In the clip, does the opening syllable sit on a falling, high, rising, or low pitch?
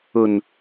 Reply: low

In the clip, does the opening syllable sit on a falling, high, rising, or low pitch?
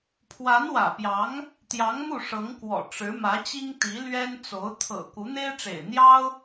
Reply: rising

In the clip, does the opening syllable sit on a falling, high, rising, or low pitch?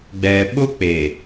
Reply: low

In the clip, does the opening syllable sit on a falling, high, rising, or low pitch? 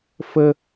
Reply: high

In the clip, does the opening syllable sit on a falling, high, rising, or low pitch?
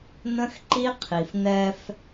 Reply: high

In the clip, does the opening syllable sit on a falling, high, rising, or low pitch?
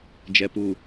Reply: low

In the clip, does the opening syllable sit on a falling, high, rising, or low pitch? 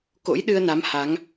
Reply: rising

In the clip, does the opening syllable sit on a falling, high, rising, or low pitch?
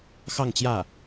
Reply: falling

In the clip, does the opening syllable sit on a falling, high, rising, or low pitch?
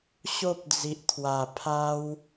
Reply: high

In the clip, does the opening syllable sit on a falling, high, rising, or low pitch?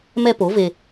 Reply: high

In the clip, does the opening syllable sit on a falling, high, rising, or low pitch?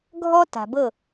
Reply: high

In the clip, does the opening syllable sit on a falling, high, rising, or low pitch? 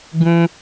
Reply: high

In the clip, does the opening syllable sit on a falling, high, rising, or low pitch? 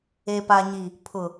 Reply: low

